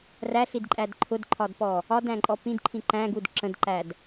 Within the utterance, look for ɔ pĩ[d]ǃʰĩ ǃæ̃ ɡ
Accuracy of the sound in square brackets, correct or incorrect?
correct